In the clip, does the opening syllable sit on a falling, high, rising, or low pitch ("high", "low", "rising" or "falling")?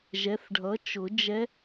rising